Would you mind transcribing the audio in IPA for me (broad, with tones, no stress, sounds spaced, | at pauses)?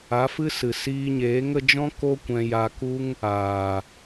a˨˦ f ɨ˦ s ɨ˨ s iː˧ ɲ eː˨˦ ŋ ə˧ d͡ʒ ɔ̃˦ k o˦ kʷ ɛ̃˧ j a˧ k u˦ ŋ | aː˨